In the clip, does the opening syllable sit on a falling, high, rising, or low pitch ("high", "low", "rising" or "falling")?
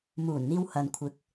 low